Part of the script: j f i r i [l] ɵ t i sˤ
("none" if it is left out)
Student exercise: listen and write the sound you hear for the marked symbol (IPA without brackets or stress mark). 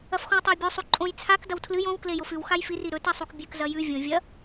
ɾ